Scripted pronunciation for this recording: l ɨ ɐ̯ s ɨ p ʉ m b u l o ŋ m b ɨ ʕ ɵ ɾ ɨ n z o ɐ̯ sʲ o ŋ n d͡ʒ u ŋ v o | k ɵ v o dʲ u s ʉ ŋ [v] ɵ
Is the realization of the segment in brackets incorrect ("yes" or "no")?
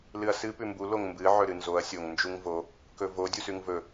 no